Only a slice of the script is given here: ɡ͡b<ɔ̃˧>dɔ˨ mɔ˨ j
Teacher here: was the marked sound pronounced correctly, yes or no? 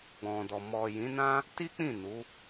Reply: no